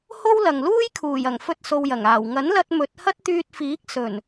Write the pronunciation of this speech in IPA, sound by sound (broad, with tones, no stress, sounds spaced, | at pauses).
h o˥ w l ɐ˨ ŋ l uː˥ j kʰ uː˨˩ j ɐ˨˩ ŋ f ɵ˧ t̚ s o˧ w j ɐ˨˩ ŋ aː˨˩ w ŋ ɐ˨˥ n l ɐ˧ t̚ m ɵ˨˥ t̚ h ɐ˥ t̚ t̪ yː˧ t̚ f iː˨˥ k̚ s ɵ˨˩ n